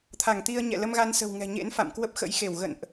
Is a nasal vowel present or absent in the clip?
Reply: absent